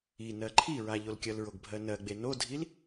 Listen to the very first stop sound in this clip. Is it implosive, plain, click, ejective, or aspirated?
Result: click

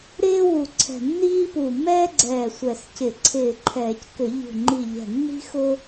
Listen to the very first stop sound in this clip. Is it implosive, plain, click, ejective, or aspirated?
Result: click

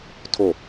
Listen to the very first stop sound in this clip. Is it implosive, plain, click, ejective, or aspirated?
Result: aspirated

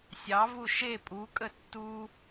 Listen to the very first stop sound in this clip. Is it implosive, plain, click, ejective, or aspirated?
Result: ejective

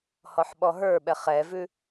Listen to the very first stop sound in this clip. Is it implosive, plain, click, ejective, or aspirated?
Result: implosive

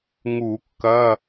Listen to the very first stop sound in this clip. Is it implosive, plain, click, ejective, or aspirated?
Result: plain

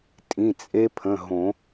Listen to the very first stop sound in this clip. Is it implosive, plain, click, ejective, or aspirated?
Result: ejective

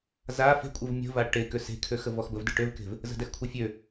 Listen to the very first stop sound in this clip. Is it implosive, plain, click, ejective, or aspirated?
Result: ejective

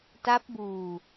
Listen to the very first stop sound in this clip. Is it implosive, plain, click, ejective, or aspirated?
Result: plain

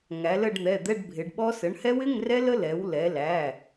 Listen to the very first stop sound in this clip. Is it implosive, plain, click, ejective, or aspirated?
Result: plain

